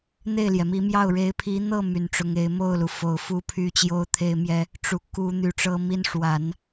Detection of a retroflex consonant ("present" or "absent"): present